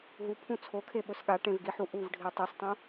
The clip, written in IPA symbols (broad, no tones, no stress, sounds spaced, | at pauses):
ɦ u pʰ ũ t͡sʰ o kʰ e ɓ ɵ s ɠ a ʈ ẽ v ɡ i ħ u ʔ u v ɖʱ i tˤ o s tˤ ũ